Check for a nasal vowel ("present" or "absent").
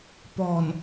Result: absent